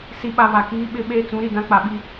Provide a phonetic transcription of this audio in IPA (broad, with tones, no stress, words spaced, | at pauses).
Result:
si˨ɓa˨ βa˨kiː˦ɓɪ˦ ɓeː˦t͡sũ˨˦ɾi˨ dã˦k͡pa˨ɓi˦